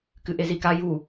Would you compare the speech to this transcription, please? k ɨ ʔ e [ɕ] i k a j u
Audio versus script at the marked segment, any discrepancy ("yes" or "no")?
yes